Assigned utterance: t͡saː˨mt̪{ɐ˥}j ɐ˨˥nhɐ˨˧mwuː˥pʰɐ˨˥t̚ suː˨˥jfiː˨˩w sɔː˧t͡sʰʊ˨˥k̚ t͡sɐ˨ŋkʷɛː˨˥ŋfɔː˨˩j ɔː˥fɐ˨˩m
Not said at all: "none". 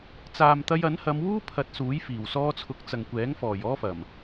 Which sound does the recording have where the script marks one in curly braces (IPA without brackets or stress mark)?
ɐ˧